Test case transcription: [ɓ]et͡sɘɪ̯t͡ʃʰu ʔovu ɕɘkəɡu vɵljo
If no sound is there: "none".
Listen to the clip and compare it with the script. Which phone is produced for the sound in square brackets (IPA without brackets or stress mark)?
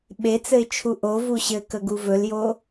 ɓ